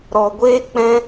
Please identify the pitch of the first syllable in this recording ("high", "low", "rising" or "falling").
low